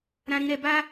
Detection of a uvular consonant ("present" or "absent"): absent